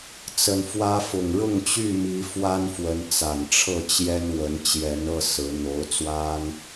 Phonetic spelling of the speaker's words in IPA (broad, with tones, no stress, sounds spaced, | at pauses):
t͡s ə˨˩ n f w ä˦ f ʊ˨˩ ŋ ɻ ʊ˥˨ ŋ t͡ɕ y˥˨ m i˨˦ f w a˦ n f w ə˨˦ n t͡s a˨˩ n ʈ͡ʂʰ ɤ˥˨ t͡ɕ j ɛ˦ n w ə˨˦ n t͡ɕ j ɛ˨˦ n ɤ˥˨ s ɹ̩˨˦ n̪ o˨˦ ʊ̯ t͡s w a˦ n